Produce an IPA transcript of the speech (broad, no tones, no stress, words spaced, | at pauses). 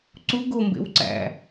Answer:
ǀu ɡombḛw ǀæ̰